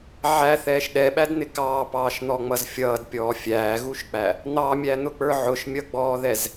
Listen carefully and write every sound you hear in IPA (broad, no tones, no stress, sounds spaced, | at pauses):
ʕ æ θ ɛː ʃ ɗ ɛ ɓ æ d n̪ ɪ k ɑː p ɑː ʃ n̪ ɔ ŋ͡m ʌ z fʲ ʌː d pʲ ɔː fʲ æː ɣ u ʃ k͡p æ | n̪ ɑ mʲ æ n̪ ʊ k͡p ə˞ ʕ ʊ ʃ mʲ ʌ ɡ͡b ɔː ð ɛ z